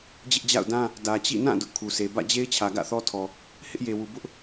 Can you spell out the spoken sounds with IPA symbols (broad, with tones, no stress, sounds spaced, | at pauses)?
d͡ʑ ɪ˦ ʔ d͡ʑ a̰˦˨ ʊ̯ d ã˦ | d ä˨ t͡ɕ ḭ˦˨ n ã˦˨ d ʊ˦ ʔ kʰ u˨ s e˨ b ä̰˦˨ d͡ʑ e˦ ɪ̯ t͡ɕʰ ä˨ ɡ ä̰˦˨ θ ɔ˦ tʰ ɔ˨ | h ɪ˦ ʔ j e˨ w u˨ b ʊ˦ ʔ